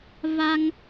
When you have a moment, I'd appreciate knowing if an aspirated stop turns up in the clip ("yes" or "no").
no